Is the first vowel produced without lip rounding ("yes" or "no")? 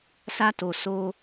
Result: yes